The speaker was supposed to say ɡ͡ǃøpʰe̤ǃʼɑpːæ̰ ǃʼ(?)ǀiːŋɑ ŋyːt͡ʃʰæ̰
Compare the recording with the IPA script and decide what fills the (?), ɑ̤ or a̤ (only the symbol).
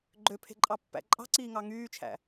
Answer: ɑ̤